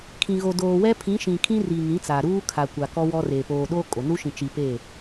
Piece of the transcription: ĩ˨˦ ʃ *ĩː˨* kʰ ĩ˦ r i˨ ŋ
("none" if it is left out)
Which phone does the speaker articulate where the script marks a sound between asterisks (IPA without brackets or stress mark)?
ĩ˨